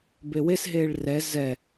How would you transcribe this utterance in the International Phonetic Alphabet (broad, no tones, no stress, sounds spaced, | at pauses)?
b e w e s ɦ eː ɭ r ɛ z ɛ